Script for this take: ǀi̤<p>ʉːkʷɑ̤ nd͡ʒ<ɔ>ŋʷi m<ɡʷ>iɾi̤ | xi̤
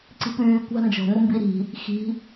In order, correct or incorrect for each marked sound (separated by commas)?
correct, incorrect, incorrect